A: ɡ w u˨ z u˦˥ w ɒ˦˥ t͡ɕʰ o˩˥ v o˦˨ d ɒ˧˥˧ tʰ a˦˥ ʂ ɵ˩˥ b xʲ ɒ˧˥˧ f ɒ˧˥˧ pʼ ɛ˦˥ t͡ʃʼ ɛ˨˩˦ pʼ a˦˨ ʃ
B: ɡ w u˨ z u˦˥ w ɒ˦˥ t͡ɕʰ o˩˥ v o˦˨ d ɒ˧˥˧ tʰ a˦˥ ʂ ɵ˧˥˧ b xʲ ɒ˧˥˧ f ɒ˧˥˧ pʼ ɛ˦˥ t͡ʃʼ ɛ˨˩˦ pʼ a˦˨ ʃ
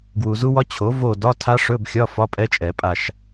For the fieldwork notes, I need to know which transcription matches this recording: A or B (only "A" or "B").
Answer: B